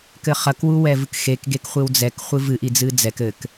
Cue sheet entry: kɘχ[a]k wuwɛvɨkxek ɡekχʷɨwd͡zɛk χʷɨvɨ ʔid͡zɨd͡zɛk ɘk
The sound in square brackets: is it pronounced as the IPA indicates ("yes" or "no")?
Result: no